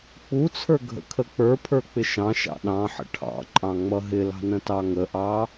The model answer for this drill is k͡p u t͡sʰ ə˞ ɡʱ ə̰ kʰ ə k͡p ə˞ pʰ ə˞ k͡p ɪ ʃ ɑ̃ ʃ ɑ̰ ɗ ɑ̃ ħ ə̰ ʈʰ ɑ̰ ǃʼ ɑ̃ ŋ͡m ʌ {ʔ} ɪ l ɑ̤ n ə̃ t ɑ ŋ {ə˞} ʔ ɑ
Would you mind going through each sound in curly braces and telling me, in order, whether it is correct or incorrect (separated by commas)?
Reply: incorrect, incorrect